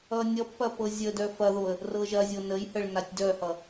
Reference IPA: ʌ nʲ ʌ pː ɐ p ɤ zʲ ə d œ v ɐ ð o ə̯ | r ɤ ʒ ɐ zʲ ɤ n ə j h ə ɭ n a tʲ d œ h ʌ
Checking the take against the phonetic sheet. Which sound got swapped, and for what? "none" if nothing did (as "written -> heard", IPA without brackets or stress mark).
v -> f